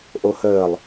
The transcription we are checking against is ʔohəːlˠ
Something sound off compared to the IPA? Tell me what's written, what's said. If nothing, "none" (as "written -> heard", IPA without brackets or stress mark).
none